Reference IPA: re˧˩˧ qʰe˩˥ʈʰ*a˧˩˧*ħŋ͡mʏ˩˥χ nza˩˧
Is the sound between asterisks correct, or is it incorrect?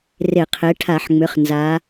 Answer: correct